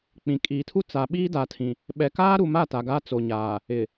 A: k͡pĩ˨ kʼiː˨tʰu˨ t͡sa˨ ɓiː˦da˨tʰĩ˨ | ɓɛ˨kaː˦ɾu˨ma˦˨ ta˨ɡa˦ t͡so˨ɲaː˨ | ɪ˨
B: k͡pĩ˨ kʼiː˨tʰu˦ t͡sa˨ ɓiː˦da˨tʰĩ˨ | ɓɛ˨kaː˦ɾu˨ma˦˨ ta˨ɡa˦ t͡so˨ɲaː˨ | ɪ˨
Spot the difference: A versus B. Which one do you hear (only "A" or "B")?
B